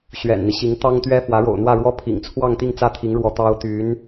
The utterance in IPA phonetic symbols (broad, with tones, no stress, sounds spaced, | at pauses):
ɕ ɥ ɛ̰˨˩ n n̪ i˦ ɕ i˧˥ ŋ t̪ ɑ˥ ŋ t̪ ɥ ɛ˥ f w ä˧˥ ɻ o̰˨˩ ʊ̯ n̪ w ä˥˧ ɻ w ɔ˥˩ pʰ ḭ˨˩ ŋ t͡sʰ w ɑ˥˧ ŋ t̪ i˥˧ ŋ t͡s ä˥˩ t̪ʰ i˧˥ ŋ ɻ w ɔ˧˥ t̪ ɑ˥ ʊ̯ t̪ y˧˥ n